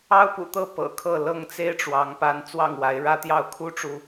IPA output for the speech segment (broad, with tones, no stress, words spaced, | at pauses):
ɑ˦ʊ̯pṵ˨˩t̪ɤ˥˨ pɤ̰˨˩kʰɤ˥˨ lɤ˥˨ŋt͡se˦ɪ̯ ʈ͡ʂwɑ˨˦ŋpa˨˦n t͡swɑ˥˨ŋwa˨˦ɪ̯ ɻä˦t̪jɑ˥˨ʊ̯ kʰu˦ʈ͡ʂu˨